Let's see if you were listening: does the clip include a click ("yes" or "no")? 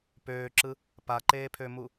yes